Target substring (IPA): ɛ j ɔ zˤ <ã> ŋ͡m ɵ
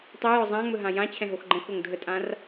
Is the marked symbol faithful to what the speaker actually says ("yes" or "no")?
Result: yes